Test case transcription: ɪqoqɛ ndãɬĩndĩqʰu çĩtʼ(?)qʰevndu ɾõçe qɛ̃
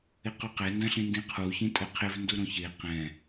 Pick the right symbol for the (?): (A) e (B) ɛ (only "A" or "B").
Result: B